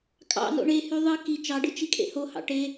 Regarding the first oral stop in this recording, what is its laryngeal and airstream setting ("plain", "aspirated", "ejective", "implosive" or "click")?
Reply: ejective